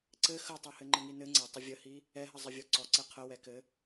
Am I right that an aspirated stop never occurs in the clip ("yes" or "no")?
no